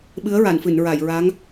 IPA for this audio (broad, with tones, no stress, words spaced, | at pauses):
ɓɨ˧˥ə̯ɹa˨˩˨nfɨ˨˩˨nɹa˨˩˨j ɹa˧˥ŋ